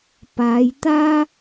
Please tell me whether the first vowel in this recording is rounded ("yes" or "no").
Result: no